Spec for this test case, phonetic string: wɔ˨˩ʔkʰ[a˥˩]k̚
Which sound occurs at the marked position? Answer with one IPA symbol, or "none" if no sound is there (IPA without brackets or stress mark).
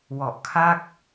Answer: a˥˩